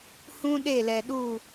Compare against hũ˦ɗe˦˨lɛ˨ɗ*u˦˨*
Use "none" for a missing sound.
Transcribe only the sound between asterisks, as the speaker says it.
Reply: u˦˨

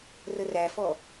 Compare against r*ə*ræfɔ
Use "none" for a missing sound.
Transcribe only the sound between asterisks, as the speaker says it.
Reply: ə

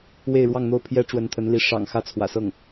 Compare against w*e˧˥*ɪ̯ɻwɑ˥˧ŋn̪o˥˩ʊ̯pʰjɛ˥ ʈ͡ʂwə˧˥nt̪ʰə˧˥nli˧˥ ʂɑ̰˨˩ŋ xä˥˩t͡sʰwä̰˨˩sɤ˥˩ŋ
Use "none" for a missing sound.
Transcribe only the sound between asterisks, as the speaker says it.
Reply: e˥˧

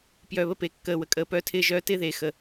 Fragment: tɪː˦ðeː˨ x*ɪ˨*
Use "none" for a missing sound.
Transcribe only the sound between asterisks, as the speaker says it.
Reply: ə˨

